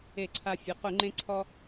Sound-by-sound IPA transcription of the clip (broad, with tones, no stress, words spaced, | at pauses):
e˧˩˧ǀʰa˧fʲʊ˩˧˩ qʊ˧˩˧ŋ͡ǃẽ˧ǀʰɔ˧